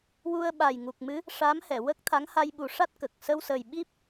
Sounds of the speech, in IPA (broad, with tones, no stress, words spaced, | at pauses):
wu˧ə̯ɓa˨˩jŋu˨˩k̚mɨ˧˥ | ʂa˧˥mhɛ˨˩˨wə˦˥k̚ t̪ʰa˧˥ŋha˧jɓu˨˩˦ʂa˦˥t̚ kə˨˩k̚ sə˧wsə˨˩j ɓi˦˥p̚